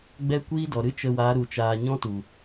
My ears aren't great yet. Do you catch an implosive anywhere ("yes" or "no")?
no